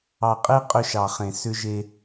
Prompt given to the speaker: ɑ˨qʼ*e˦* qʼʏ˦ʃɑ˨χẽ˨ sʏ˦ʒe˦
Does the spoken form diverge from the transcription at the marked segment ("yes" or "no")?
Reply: no